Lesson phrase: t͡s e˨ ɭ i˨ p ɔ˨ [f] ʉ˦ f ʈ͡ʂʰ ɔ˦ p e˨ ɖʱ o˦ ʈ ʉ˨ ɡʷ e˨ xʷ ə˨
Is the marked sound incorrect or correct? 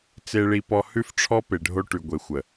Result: incorrect